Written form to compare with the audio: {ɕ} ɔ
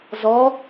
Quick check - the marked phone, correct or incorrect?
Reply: incorrect